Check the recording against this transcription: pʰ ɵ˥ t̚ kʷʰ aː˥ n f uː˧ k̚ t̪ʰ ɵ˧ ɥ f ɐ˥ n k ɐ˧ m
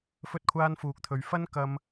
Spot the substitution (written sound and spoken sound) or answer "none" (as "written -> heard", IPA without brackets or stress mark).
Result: pʰ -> f